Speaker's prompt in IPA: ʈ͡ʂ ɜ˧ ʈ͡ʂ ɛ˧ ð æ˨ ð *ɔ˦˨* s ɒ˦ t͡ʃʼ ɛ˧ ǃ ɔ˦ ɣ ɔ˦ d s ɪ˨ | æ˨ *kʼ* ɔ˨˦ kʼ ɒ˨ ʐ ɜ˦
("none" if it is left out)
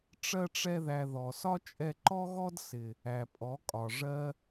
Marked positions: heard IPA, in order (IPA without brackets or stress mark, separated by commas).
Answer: ɔ˨, pʼ